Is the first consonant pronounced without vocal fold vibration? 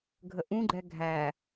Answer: no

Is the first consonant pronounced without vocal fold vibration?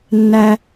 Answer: no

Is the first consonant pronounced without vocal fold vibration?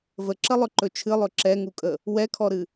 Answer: no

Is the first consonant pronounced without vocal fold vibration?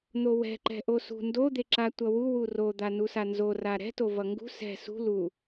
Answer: no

